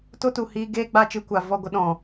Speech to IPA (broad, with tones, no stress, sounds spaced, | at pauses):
t o˦ t u˨ h iː˧ ɡ eː˦ ɡ͡b a˦ t͡ʃ ɨ˧ kʷ a˨ v ɔ˦˨ ɡʷ ə˦ ɗ ɔ̃˨